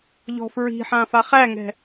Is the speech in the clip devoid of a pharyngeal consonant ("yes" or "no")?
no